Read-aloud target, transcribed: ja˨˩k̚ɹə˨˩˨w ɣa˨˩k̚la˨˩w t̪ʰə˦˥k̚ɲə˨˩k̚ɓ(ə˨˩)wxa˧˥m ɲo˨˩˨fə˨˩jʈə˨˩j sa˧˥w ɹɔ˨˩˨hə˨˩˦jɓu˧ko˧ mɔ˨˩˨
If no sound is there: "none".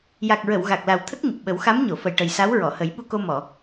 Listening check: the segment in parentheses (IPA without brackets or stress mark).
ə˨˩˦